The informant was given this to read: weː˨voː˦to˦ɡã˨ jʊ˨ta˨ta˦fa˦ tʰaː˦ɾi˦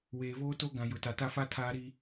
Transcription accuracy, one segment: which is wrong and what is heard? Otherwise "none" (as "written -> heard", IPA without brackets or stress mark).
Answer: none